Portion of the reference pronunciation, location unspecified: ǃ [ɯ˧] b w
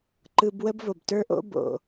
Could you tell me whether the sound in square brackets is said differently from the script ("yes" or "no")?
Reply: no